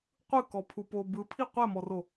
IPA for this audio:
qʷ ɯ k ɔ pʰ u p o b ɯ pʰ i qʷ ɛ m ɔ r o

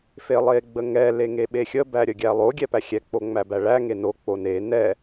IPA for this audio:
f e lˠ e ɡ͡b ə ŋ ɛ l e ŋ e ɓ e xʲ ə b æ ɾʲ ə ɡʲ æ lˠ o ɡʲ ɛ p æ xʲ ɛ k͡p o ŋ͡m æ b æ ɭ æ ŋ e n o k͡p o n e n ɛ

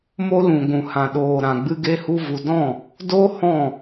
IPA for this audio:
m o˦ l ũ˨ ɡʷ ũ˨ h ã˨ ɗ oː˨ ɾ ã˨ ɡ͡b ɨ˦ ɡ e˦ h u˦ v u˧ d ɔ̃˦˨ | d o˦ h ɔ̃˦˨

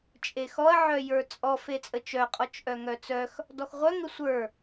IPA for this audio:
t͡ʃʼ e x ɔ ɐ̯ ʕ œ j ə˞ t͡sʼ ɔ f e t͡sʼ ə t͡ʃ œ qʼ ɔ t͡ʃ ʔ œ ŋ œ t͡s œ x | d ɔ x ʁʷ œ ŋ ə sʷ ə˞

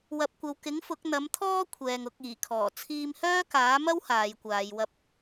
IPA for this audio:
w ɐ˨ p̚ kʷ ɐ˨ w k ɪ˨˥ ŋ f ʊ˨˥ k̚ n̪ ɐ˨˥ m t̪ʰ ɔː˥ kʷʰ ɛː˨ ŋ ʊ˨˥ k̚ iː˨˩ kʰ ɔː˨˩ t͡sʰ iː˧ m h œː˥ k aː˨˥ m ɐ˥ w h aː˨˧ j kʷ aː˨˧ j w ɐ˧ p̚

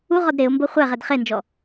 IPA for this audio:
u ʁ ɔ d ɾ e ʊ̯ m b o χʷ ɛ ʁ ɛ d χ e n d͡ʒ ɔ

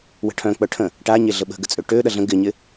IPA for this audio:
w ə̤ ʈʰ œ̃ k͡p œ ʈʰ ə̃ | ʈ a ɲ e ɮ ə ɓ ə̤ ɡ ə t͡sʼ ø ʈ ø ɗ ɐ ɮ ə̃ ɡ ɪ ɲ ɪ

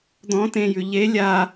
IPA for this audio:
d̪ ɔ̃ t ẽ j ʉ ʎ e lʲ a

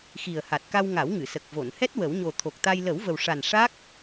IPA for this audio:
x i˨˩ ə̯ h a˨˩ t̚ k a˧ w ŋ a˨˩˦ w ŋ ɨ˨˩˨ s ə˨˩ k̚ v o˨˩˨ n h ɛ˦˥ t̚ w ə˨˩˦ w ɲ o˨˩ t̪ʰ o˨˩ k̚ t̪ a˧ j l ə˨˩˦ w v ə˨˩ w ʂ a˨˩ n ʂ a˦˥ k̚

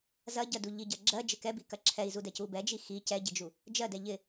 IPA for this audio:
z ɐ ɟ ɜ d u ʎ i ɟ ɜ ɡ͡ǁ ɜ d͡ʒ ɪ k ɛ b i k ɐ ǁʰ ɛ i̯ z u d ɛ c u b ɛ d͡ʒ i x i c ɛ ɟ ɪ d͡ʒ u | d͡ʒ ɜ d ɛ ʎ ɪ

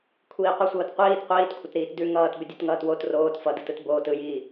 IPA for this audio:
kʷʰ iː qʷ ə sʷ ʌː t qʷ iː t qʷ iː t kʷʰ ə t ɾ iː t d ʉ ŋ ʌː t b ʏ dʲ ɯ t ŋ ʌː t w o t r oː t f ʌ d ɯ t ɯ t b oː t ɯ j iː

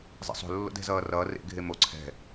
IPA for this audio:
zˤ ḛ sˤ o̤ lː o̰ d ɛ̤ z ʌː r ʌː r ḛ ɡʱ e m o ǀʰ ɛ̤

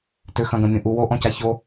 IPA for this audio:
t ʏ x ɐ̃ ɡ ɐ̃ mʲ õ ʔ u w o ʔ ɔ̃ c a ç o

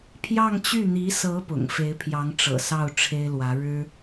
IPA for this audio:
pʰ j ɑ˥˧ ŋ t͡ɕ y˥˩ n̪ i˧˥ s ɤ˧˥ p ʊ̰˨˩ ŋ f e˧˥ ɪ̯ pʰ j ɑ˧˥ ŋ ʈ͡ʂ ɤ̰˨˩ s ɑ˥˩ ʊ̯ ʈ͡ʂʰ e˥ ɪ̯ l w ä˧˥ ɻ ɻ̩˥

